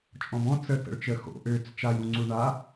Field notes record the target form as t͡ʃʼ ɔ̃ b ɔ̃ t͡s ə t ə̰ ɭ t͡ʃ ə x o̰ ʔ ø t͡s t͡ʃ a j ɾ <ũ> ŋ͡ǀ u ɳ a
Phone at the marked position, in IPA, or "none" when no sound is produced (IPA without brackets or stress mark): ũ